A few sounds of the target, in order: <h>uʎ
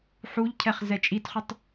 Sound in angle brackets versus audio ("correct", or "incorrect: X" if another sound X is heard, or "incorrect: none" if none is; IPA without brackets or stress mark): incorrect: ħ